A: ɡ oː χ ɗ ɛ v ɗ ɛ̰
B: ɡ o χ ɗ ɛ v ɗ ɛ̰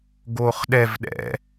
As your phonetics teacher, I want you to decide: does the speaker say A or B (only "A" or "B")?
A